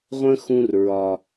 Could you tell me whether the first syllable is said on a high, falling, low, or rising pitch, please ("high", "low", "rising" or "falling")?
high